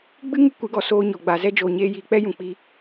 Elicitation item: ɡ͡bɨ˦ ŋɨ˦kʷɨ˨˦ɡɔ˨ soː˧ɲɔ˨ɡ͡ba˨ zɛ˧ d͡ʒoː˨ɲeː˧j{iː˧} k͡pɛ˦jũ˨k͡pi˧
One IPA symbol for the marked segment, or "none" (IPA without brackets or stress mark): iː˨